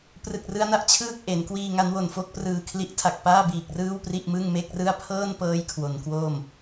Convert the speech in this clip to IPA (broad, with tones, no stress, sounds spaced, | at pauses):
p r ɯ˨˩ k̚ r ɯ˦˥ a̯ n a˥˩ ʔ t͡ɕʰ ɯː˥˩ k̚ ʔ e˩˦ n k w iː˧ ŋ a˦˥ n w o˨˩ n f o˥˩ k̚ p r ɯː˨˩ kʰ l i˦˥ ʔ tʰ a˨˩ k̚ p aː˥˩ b iː˨˩ k̚ r ɯː˥˩ w p r i˥˩ ʔ m ɯ˥˩ ŋ m e˥˩ k̚ r ɯ˥˩ a̯ pʰ ɤː˥˩ n p ɤː˦˥ j kʰ w o˩˦ n k w oː˥˩ m